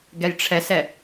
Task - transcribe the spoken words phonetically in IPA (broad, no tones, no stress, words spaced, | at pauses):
ɡɛjʈ͡ʂʰɛsɛ